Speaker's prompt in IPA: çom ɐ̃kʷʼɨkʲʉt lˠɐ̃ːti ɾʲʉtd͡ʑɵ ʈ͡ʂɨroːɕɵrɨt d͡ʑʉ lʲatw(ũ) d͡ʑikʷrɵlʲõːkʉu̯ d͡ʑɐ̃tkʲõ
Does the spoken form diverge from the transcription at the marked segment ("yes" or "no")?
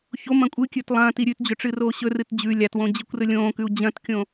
yes